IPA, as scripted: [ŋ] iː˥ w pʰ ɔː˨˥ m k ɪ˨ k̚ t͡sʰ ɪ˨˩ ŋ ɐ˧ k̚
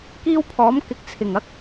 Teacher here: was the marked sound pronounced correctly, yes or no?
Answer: no